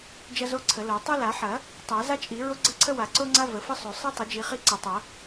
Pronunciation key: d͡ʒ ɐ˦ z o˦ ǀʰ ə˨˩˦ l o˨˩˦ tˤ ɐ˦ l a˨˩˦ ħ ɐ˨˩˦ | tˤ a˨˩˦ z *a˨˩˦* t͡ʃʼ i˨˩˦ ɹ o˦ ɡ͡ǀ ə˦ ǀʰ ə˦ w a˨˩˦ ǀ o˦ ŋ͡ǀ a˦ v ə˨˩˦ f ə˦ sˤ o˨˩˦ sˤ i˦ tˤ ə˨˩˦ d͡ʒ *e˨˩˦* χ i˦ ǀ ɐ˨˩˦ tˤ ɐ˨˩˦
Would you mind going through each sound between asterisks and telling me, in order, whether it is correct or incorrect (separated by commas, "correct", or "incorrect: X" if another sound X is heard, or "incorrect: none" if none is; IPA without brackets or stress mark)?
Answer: incorrect: a˦, incorrect: i˨˩˦